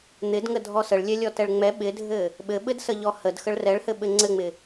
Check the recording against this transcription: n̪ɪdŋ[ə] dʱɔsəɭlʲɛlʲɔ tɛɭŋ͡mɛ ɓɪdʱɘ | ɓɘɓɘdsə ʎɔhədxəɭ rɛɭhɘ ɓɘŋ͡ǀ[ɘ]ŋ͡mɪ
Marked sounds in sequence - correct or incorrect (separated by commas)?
correct, correct